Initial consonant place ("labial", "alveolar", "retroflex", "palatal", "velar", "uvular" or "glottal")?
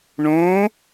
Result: retroflex